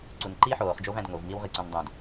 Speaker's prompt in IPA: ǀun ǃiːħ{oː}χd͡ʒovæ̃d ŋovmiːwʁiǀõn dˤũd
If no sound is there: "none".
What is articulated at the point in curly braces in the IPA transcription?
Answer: oː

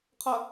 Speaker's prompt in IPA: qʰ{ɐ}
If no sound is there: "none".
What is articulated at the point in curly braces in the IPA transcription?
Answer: ɐ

